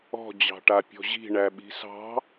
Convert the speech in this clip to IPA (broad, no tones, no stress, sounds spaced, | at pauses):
ɔ̤ d͡ʑ ɑ̤ ʈ a pʲ ɔ̤ ʑ i̤ ɳ æ ɓ i̤ s ɑ̤